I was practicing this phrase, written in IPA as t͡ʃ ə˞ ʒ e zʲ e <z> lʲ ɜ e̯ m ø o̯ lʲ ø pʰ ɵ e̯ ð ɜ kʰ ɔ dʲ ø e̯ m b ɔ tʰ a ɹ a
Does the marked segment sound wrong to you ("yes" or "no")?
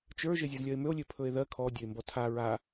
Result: no